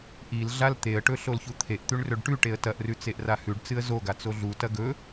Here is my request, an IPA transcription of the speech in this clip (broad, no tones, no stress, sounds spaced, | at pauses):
ʔ i l ɮ a l t̪ e ə̯ ʈ ɵ ɬ o l ç u t̪ʰ e ʔ t̪ ʉ ɳ r ɵ ɖ ʈ ʉ ʈ e ə̯ t ɐ ʔ r ʉ t͡s e ʔ r a h ʉ ɖ t͡s ɨ ə̯ z o ɡ a t͡s o ɮ u t ɐ ɡ ɵ